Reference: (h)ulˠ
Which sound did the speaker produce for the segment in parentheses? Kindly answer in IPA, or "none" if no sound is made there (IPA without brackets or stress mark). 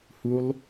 h